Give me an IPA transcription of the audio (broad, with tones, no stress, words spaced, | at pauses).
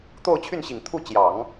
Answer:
t̪o˥˧ʊ̯t͡ɕʰy˥˩nɕi˨˩ŋt̪ʰu˥˩ t͡ɕjɑ˨˩˦ŋ